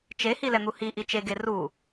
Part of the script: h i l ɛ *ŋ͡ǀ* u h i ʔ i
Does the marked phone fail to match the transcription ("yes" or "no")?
yes